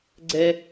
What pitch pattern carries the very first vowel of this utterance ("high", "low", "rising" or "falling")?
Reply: high